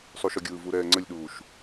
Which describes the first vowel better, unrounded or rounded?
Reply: rounded